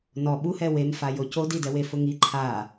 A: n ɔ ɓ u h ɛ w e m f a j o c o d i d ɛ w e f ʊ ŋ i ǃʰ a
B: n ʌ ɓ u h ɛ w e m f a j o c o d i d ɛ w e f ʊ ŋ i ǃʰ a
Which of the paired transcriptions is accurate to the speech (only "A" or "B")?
A